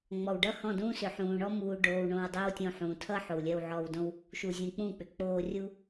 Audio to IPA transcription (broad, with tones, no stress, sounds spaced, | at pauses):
ŋ͡m ɔ˨ w ɖ ʌ˦ h ɔ̃˦˨ d ũː˦ s ʏ˨ ħ ũː˨ ɳ ɔ˦ m uː˧ ɖ oː˧ w ɳ õ˧ w dˤ ɜ˦ w tʲ õ˧ ħ ũː˨ tʰ ʌ˦ ħ o˨ w lʲ ɜ˧ w ʕ ɔː˧ w d õ˦ w | ʃ u˨ zʲ ũ˨ k͡p ũ˦˨ k͡p ʏ˨ k͡p oː˧ rʲ u˦